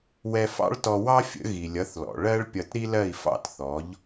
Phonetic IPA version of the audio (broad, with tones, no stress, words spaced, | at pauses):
wɛ˧fɑ̰˥ɭtɔ˧ wɑ˥fʲə̰˩˥ ɣi˩lʲʌ˩˥θlɔ̰˩ ɭɜ˥ɭpʲʌ˧tɾi˥lɜ˥˩i̯ fɑ̰˥tθɔ˩˥ʎ